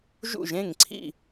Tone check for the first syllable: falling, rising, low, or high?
falling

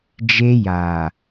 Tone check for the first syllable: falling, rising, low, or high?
high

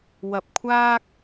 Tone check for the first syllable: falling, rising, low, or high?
low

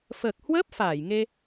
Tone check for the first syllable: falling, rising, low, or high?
low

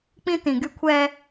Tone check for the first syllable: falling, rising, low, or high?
high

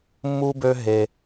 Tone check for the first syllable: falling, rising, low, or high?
high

